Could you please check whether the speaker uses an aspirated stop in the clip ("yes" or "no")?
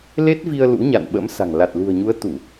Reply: no